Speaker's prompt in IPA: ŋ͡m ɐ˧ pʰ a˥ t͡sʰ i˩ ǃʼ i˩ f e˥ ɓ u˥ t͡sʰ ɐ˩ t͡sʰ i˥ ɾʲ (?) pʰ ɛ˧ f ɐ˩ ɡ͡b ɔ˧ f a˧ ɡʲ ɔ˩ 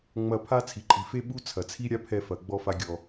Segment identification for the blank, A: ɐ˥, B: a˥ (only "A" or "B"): B